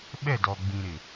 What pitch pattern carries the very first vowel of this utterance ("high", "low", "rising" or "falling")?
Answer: falling